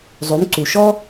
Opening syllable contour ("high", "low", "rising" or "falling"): rising